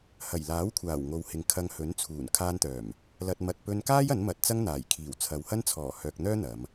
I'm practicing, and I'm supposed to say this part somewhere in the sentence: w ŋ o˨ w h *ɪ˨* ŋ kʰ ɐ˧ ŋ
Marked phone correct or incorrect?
correct